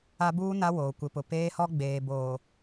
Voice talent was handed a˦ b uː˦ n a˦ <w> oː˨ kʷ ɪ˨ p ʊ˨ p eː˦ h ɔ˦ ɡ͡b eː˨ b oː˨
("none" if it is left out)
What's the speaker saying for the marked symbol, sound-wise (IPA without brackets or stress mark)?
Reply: w